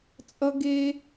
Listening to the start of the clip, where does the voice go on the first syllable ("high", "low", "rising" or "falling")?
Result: high